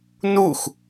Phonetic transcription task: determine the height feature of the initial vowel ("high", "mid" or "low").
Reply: high